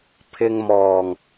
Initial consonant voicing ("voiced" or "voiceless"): voiceless